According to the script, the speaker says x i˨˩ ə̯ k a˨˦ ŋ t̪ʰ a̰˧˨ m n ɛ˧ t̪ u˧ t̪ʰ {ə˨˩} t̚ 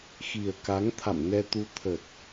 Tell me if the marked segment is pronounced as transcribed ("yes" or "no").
yes